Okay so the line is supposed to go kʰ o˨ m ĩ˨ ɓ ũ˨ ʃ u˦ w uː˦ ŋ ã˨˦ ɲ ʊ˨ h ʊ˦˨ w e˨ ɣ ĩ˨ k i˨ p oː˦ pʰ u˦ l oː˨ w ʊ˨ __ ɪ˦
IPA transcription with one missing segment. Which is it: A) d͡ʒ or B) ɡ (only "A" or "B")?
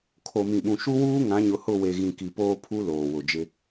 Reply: A